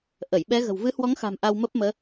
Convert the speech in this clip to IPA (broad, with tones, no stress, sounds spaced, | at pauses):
ʔ ə˧˩ j ɓ ɛ˨˦ ɣ ə̤˨˩ w v ɨ˨˦ h w ɔ˨˦ ŋ x a̤˨˩ m ʔ a˧ w m ə˦˥ p̚ m əː˨˦